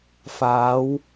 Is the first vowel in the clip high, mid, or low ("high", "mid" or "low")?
low